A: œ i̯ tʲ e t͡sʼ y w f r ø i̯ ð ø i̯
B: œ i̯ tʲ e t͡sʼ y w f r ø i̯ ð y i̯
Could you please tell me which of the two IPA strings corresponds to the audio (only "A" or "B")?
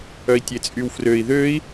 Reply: A